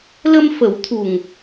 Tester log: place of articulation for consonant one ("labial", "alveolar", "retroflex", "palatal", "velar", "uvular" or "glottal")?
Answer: alveolar